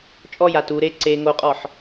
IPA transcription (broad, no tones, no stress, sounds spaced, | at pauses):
t͡ʃʼ ɔ j a t u ɾ e ǀ e ŋ o qʼ ɔ ħ